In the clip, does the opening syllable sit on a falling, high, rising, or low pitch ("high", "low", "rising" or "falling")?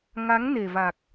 rising